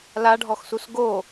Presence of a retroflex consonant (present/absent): present